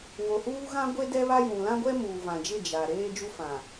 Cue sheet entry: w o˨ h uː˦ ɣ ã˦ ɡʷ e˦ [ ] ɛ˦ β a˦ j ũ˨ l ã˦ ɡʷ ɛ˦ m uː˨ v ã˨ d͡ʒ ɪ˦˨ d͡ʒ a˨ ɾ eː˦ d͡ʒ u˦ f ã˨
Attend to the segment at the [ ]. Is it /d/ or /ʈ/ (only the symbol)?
d